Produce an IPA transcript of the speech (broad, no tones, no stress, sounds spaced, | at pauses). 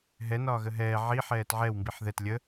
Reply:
ɦ ɛ n ɒː ɣ ə ɦ ɛː ʕ i ħ ɛː t ʕ ɛ w m b i ħ ð ɛ t lʲ ə